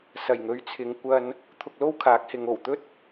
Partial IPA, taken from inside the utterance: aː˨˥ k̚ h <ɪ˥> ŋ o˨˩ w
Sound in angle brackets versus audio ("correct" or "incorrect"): incorrect